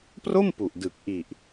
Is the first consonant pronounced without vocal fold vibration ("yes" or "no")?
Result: yes